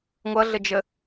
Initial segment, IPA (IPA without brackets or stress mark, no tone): ŋʷ